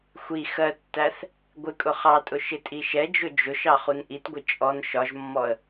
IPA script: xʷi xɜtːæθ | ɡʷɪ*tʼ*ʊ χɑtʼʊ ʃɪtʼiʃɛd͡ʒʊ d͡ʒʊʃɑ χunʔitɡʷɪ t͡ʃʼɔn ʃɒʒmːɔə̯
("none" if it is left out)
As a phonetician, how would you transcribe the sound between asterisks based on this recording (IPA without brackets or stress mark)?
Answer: kʼ